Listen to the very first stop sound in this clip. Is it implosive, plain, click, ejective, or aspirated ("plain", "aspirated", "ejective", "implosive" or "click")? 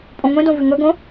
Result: ejective